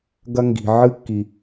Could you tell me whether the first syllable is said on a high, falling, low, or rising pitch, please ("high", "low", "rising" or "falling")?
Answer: high